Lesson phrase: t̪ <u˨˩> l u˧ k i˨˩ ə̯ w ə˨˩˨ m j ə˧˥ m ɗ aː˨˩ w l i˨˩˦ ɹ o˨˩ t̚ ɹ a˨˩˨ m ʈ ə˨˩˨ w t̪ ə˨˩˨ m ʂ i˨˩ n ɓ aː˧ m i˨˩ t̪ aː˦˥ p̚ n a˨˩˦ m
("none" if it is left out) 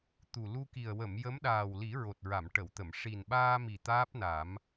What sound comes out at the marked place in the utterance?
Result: u˨˩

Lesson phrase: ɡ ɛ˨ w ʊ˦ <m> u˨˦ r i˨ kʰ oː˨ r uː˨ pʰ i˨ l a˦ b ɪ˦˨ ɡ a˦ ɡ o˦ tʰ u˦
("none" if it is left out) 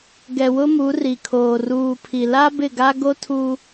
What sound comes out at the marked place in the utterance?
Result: m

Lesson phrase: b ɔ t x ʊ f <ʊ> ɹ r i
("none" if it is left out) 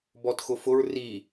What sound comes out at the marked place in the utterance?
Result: ʊ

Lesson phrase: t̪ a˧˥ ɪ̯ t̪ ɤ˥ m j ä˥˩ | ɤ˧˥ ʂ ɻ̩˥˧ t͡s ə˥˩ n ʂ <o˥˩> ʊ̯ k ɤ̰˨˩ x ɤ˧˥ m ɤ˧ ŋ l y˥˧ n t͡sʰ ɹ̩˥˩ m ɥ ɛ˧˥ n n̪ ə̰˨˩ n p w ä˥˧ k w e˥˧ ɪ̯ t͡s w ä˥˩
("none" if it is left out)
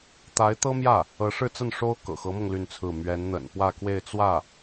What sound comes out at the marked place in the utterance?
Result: o˥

